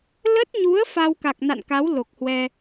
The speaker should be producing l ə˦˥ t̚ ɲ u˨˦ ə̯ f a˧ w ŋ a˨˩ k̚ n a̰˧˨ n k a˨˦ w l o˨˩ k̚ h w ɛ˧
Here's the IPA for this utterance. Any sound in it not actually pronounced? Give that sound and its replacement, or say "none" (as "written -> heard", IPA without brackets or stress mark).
ŋ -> k